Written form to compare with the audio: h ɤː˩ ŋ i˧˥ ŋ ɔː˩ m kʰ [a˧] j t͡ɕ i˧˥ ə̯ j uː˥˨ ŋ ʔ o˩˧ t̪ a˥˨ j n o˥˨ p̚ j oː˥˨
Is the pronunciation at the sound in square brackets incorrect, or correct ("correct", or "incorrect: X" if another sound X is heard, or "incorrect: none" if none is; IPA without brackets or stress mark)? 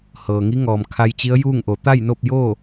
correct